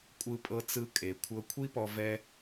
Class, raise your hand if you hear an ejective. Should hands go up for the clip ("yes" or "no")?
yes